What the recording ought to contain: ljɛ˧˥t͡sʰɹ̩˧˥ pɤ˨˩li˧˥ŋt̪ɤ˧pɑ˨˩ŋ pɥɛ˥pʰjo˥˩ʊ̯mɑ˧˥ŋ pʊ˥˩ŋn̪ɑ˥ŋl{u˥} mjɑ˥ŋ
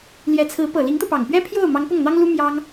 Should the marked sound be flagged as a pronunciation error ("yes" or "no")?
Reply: no